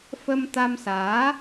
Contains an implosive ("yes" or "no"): no